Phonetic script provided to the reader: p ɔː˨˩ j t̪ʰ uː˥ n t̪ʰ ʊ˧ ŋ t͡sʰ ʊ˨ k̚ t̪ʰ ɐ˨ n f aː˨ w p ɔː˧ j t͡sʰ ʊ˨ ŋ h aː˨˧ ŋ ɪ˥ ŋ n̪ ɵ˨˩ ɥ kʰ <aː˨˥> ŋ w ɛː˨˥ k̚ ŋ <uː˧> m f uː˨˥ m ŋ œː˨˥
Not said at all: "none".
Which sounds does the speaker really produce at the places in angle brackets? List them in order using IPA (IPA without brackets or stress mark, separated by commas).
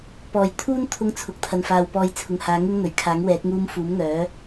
aː˨˥, uː˧